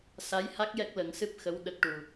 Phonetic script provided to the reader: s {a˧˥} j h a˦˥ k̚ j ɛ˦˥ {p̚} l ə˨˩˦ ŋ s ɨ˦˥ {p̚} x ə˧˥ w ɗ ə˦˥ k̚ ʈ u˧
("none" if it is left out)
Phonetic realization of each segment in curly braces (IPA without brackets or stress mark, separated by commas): a˧˥, k̚, p̚